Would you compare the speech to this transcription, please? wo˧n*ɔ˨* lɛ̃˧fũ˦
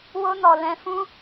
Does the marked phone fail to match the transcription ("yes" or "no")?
no